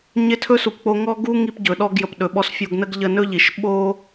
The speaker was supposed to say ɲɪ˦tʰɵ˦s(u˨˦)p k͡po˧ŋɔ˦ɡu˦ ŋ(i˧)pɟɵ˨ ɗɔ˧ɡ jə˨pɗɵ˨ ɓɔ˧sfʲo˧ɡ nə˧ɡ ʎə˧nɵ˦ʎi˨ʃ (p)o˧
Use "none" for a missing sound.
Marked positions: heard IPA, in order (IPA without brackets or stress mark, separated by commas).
u˨, i˧, ɓ